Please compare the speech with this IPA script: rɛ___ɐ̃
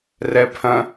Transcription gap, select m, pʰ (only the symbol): pʰ